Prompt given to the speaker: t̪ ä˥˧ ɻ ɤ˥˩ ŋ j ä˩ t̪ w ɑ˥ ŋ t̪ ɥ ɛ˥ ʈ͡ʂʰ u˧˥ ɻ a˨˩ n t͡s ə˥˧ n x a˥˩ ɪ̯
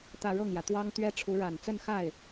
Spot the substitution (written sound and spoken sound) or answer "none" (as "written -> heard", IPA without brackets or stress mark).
none